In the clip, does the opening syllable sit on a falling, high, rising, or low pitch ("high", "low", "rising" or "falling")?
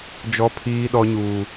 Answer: high